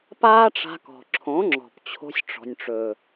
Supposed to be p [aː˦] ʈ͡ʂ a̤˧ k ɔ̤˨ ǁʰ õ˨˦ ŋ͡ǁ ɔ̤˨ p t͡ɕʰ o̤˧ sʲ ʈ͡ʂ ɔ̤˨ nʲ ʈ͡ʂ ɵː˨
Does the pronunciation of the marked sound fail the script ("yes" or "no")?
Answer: no